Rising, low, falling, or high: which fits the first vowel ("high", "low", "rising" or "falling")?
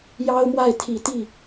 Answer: high